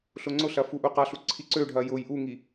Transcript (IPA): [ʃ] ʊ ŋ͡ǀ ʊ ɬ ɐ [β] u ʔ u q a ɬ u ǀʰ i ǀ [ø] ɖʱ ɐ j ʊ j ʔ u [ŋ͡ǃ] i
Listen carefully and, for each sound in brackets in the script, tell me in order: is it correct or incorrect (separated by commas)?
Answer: incorrect, incorrect, correct, incorrect